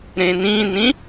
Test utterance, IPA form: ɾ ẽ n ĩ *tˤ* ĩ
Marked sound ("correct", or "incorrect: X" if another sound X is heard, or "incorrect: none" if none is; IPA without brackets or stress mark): incorrect: n